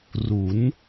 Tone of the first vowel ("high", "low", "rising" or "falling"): rising